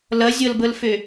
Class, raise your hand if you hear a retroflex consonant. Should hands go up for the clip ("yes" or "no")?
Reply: no